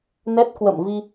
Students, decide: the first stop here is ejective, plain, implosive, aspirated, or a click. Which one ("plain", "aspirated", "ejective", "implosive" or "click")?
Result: plain